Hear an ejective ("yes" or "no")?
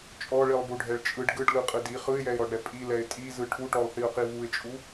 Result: yes